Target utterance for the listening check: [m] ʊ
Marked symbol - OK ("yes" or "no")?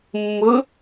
no